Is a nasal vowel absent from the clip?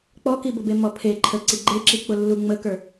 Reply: yes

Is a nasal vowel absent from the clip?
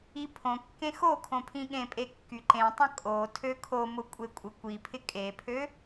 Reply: no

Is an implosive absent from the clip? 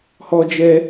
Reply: yes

